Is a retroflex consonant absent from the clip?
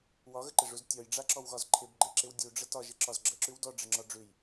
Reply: no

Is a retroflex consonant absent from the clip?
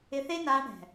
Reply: no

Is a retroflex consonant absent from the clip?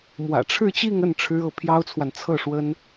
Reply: no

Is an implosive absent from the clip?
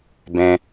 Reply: yes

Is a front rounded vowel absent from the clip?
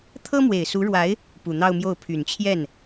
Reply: no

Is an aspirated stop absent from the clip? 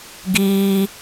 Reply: yes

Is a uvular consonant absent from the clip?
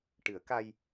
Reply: yes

